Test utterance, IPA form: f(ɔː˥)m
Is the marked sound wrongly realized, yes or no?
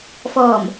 yes